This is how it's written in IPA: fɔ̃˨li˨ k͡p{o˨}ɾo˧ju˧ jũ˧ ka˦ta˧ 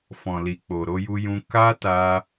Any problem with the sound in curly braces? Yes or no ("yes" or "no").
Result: no